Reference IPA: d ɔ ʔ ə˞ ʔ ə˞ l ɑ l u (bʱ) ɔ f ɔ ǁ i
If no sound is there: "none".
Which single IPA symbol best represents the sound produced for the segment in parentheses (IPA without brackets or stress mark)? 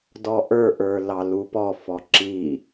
p